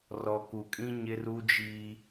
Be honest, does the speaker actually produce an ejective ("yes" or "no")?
yes